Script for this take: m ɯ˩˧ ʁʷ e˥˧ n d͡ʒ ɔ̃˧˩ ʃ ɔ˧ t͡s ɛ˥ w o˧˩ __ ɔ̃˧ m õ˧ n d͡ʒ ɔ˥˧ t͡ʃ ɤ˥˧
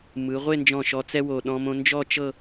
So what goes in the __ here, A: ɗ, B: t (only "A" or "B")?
A